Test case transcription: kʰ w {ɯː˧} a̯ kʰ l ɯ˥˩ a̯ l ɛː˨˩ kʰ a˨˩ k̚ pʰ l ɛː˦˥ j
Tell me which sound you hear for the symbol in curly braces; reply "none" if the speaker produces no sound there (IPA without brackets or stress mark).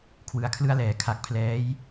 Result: ɯ˧